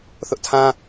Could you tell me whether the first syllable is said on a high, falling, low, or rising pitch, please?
high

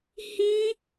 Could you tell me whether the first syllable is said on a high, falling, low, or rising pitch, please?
high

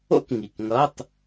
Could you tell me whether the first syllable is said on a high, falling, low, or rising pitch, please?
high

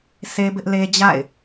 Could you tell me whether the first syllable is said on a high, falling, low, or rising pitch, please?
high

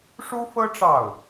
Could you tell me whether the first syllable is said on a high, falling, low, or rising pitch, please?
high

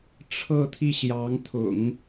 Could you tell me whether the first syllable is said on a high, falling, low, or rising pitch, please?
falling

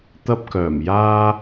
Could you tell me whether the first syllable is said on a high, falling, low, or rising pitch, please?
high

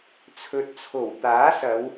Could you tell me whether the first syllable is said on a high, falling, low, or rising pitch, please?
low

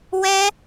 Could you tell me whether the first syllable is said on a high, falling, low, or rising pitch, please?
high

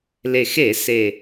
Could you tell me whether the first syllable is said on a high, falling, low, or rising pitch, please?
low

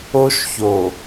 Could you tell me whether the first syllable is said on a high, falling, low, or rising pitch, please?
high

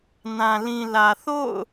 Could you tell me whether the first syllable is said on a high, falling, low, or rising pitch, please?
low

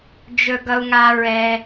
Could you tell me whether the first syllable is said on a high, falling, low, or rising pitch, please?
low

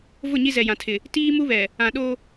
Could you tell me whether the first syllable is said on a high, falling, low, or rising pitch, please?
falling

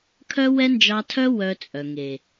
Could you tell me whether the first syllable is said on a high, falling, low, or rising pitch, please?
high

